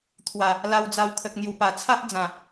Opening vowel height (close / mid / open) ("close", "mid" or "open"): open